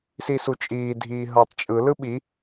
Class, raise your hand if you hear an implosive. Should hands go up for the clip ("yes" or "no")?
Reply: yes